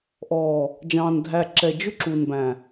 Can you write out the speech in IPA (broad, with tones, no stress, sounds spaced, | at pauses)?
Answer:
ʔ ɔː˨ | d͡ʒ ɑ̃ː˨ n dʱ æ˨ ǁ ɛ˨ d͡ʒ ʊ˦ ǁ u˨ n b æ̃˨